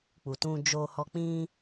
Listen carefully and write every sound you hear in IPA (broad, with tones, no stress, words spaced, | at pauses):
k͡pu˨tũ˧d͡ʒo˧hɔ˧ k͡pĩ˧